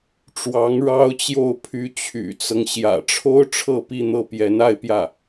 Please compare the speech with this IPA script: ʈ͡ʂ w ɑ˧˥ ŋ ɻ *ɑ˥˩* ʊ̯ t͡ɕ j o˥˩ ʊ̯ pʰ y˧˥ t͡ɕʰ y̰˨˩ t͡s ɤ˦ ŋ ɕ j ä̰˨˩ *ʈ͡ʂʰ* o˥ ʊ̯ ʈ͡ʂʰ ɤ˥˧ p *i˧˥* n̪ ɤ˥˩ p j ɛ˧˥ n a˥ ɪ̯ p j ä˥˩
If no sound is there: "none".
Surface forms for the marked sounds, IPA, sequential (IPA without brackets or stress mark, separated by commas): ɑ˥, ʈ͡ʂʰ, i˥˧